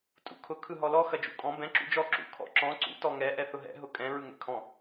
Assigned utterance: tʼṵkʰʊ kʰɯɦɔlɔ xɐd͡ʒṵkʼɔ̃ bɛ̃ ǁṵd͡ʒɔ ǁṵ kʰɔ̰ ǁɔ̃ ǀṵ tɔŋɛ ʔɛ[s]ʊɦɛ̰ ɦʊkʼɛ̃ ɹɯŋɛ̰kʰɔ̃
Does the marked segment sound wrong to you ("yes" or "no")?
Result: yes